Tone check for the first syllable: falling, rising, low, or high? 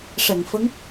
low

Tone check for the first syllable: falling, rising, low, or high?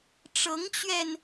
rising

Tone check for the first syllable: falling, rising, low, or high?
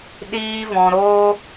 high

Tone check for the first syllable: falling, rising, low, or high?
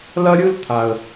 high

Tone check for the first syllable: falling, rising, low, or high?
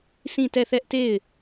falling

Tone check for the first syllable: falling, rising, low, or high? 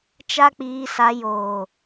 high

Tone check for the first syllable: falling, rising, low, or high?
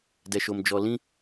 low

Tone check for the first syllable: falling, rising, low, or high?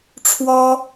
high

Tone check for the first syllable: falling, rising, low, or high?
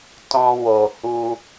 high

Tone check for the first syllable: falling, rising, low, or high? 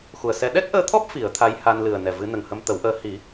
low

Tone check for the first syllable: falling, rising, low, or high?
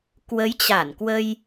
rising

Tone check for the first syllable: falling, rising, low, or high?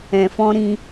low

